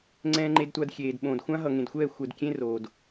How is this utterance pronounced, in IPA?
ŋ͡ǀ ɛ̃ː˨ ŋ͡ǃ e˨ d tʷ a˨ d xʲ eː˨ d ɓ õ˨ d xʷ ã˦ ɦ ʌ˨ ŋ ẽ˨ d xʷ ɛː˦˨ xʷ ɛ˨ d kʲ ẽ˦ r oː˨ d

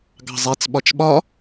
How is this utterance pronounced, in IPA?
ɡ ɑ̤ zˤ e t͡s ɓ ɒ t͡ʃ ɓ ɒ

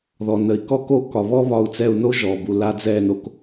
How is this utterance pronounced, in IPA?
ð ɔ˨ n ə˨ i̯ k ɔ˦ k o˦ k ɒ˨ β ɔ˦ β ɒ˧ u̯ t͡s ɛ˦˨ u̯ n o˦ ʒ ɔ˨ b u˨ l a˧ d͡z ɛ˦˨ n o˧ k

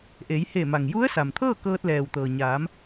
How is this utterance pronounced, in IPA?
ʔ e˩˧ j h e˧˩ m a˩ ŋ j u˧˥ ə̯ s a˩ m t̪ʰ ɤː˥˨ k ɤː˧ t̚ l ɛː˩ w t̪ ɤː˩ ɲ aː˩˧ m

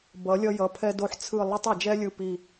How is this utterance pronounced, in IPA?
b ʌ˩˧ lʲ ʌ˧ j ʌ˩˧ pʰ ɛ˧ d o˧ ħ t͡sʰ ɯ˧˩ lˠ ɛ˥ tˤ ʌ˧˩ d͡ʒ ɛ˥ lʲ ɯ˧˩ p i˧˩

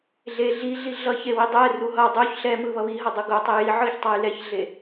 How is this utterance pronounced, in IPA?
ɮ e ɮ i ɮ i ɮ ʌ ç e w i dˤ ɛ r u ɦ ʌ dˤ u ç ɬ ɛ m ɯ β ʌ β i ɦ ʌ dˤ u ɡ o tˤ e j i ʕ ɯ ç tˤ a j l ɛ ç ɮ e

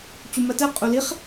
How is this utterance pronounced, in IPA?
t͡ɕ u m ɜ t ɛ qʼ u l i χ

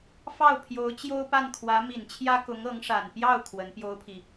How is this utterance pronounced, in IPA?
f ɑ˥˩ ʊ̯ pʰ j o˧˥ ʊ̯ t͡ɕ j o˥ ʊ̯ p a˥˩ n kʰ w ä˧˥ m i˨˩ n t͡ɕʰ j ä˥ k ʊ˧˥ ŋ ɤ˧˥ ŋ ʂ a˨˩ n p j ɑ˥˩ ʊ̯ kʰ w ə˧˥ n p j o˥ ʊ̯ pʰ i˨

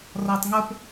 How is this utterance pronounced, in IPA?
r ɒ tˤ ŋ ʊ p

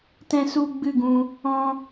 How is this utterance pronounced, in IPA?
t ɛ̃˧ s u˧ ɡ͡b ɨ˦˨ ɡ ũ˧ | ɔ̃˦

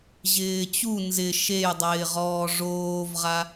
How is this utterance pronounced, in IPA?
ʑ ɪː t͡ɕ u n z ɪ ʃ e j dˤ ɪː ʁ ɔː ʐ oː v ʁ a

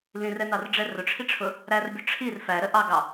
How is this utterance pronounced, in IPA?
l ĩ r ɛ n ɑ r ɖ͡ʐ ɛ r ʊ ʈ͡ʂʰ i ʈ͡ʂʰ ʊ | ɾ æ r bʲ ʊ ʈ͡ʂʰ i r f æ ɾ ə ʔ ɑ ɡ ɑ

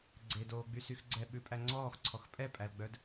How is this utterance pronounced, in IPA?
ɡ͡ǀ e d oː ɡ͡b y s y x ɡ͡ǀ ɛ ɓ ʉ pʼ æ ŋ͡ǀ ɔː x ǀʰ ɔ x pʼ ɛ pʼ æ l ɡ͡b œ d

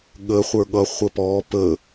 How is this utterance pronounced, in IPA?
ɠ ə χʷ ə˞ ɠ ʌ χʷ ə p ɔ p ə

